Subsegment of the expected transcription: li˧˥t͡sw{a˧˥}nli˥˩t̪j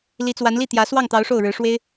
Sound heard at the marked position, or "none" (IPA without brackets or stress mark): a˧˥